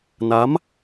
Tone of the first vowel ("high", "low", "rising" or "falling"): rising